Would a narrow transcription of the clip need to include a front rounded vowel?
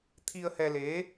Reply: no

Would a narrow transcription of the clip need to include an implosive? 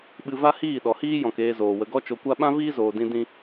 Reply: yes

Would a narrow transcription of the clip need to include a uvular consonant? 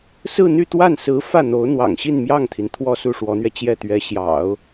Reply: no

